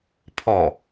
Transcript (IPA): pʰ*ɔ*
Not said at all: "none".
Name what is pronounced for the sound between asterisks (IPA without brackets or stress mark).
ɔ